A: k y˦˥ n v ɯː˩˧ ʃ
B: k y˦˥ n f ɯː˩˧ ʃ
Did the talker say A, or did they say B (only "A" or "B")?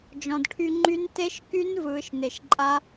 A